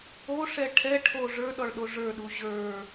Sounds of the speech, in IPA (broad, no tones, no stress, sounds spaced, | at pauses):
o ʂ ɛ ʈʰ ɛ ʈʰ o ʐ ə˞ ɗ ɔ ɭ ɗ o ʐ ə˞ ɗ u ʑ ə˞